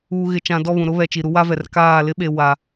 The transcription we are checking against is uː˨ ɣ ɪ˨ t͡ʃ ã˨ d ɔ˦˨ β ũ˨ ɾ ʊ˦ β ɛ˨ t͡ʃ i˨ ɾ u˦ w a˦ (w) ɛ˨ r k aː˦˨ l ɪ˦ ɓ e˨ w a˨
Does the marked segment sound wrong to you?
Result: yes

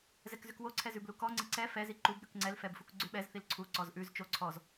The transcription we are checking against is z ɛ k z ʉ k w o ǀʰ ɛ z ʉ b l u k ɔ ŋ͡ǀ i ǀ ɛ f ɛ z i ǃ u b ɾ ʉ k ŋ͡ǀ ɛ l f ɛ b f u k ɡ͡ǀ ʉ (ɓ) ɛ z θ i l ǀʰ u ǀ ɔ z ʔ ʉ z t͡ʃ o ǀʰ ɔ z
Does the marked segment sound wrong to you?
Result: no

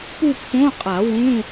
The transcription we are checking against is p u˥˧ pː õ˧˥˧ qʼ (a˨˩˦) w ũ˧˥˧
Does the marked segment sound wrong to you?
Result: no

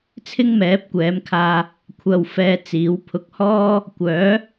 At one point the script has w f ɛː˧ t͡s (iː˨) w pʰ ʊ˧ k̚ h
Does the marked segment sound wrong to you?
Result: yes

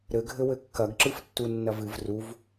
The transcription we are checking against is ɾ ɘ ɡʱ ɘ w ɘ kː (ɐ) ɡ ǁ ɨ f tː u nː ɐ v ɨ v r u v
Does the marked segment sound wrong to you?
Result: no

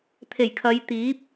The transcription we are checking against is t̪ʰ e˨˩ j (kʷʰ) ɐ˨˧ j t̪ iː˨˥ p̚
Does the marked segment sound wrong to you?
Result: yes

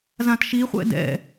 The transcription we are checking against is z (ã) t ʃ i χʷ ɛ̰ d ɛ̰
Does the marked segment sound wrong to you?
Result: no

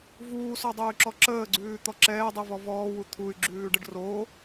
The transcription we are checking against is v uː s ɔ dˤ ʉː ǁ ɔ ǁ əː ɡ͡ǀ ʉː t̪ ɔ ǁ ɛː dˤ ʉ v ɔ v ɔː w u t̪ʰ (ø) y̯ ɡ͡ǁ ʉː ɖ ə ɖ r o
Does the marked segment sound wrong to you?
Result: yes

